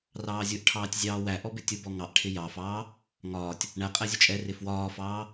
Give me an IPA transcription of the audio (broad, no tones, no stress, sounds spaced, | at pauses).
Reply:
r ɑː zʲ ʊ ʔ ʈʰ ɑː tʲ zʲ ɑː w æ ʔ ɔ b ɪ tʲ ʊ b ɔ ŋ ɑ ʔ ʈʰ ɪ j ɑ f ɑː | ŋ ɒː tʲ | ɳ æ qʼ æ zʲ ʊ t͡ʃʼ ɛ r ɪ f w ɒː f ɑː